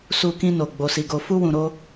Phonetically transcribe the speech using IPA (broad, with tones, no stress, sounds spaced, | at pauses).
s u˧ k ĩ˧ n o˨ ɡ͡b o˨ s i˨ ɡ o˨ f u˧ w ũ˨ ɾ o˧